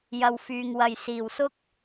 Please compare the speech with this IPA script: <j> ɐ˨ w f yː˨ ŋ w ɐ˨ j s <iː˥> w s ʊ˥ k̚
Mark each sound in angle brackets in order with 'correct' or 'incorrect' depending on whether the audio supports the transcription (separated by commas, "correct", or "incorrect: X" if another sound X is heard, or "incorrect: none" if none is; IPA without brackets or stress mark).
correct, incorrect: iː˨˩